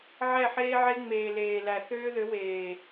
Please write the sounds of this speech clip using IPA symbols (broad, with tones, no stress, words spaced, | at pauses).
ʕɛ˦˨ħeː˦ʕe˦ ŋ͡meː˨leː˨ læ˨ θøː˦ðø˨˦weː˨